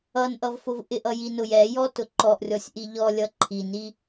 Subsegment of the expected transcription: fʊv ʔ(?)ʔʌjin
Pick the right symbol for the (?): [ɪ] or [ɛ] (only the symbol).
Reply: ɪ